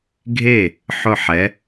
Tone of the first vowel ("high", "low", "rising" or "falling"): falling